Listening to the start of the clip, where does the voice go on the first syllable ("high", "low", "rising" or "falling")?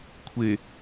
low